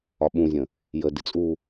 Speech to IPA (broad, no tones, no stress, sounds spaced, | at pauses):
ɒ ɓ ũ zʲ ə̃ | j ə d ɪ t͡sʼ u